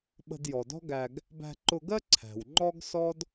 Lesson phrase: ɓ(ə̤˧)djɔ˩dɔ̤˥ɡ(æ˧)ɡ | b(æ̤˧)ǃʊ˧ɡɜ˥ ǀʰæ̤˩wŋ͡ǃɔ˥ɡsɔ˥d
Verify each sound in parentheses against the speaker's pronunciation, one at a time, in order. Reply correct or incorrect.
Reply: correct, correct, correct

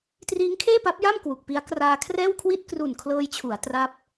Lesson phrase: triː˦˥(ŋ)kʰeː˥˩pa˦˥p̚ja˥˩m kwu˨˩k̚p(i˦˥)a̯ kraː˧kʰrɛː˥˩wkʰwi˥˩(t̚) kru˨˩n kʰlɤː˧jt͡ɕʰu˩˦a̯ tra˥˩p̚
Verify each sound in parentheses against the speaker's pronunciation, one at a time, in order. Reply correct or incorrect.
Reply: correct, correct, correct

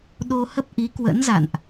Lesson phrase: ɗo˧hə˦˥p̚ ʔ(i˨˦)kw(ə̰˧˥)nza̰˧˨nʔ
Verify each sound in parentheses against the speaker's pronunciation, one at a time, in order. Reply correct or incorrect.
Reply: correct, correct

